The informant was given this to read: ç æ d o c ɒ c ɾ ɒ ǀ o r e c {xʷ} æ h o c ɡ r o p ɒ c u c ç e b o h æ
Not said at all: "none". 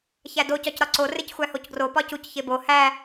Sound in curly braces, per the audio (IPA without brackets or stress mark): xʷ